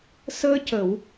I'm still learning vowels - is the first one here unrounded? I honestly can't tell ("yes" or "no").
yes